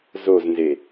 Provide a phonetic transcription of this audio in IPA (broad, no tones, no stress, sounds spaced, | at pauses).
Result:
z o z n z e